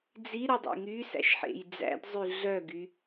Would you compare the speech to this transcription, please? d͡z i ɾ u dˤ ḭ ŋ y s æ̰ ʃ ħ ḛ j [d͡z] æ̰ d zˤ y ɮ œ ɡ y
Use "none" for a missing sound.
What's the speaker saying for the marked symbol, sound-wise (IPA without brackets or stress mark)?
d͡z